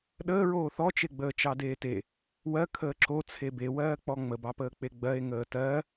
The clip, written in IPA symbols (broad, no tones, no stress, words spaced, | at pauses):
ɗəːɹoː θɔt͡ʃeɡ͡bəːt͡ʃɑ deːte | wɜ kʰəːǁo t͡sʰebewɜː k͡pɔŋ͡məbɑpəː k͡peɡ͡bɜe̯ ŋəːtɜ